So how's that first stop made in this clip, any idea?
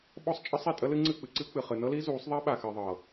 implosive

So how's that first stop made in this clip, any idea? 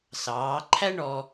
click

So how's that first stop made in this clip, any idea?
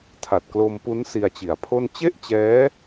aspirated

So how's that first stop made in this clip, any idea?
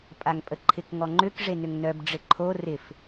ejective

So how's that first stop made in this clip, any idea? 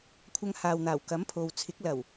aspirated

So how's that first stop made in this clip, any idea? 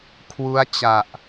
aspirated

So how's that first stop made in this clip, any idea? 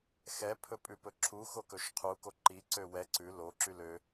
aspirated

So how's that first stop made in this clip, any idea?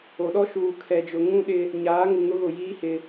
implosive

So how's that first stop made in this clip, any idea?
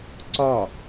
click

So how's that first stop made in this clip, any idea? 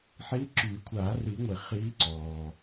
click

